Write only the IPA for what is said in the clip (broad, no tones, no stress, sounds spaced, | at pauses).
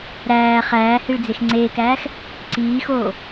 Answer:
ɾ æː χ æː h i ɭ d͡z e x ŋ͡ǀ eː k æː x | ǀ iː x oː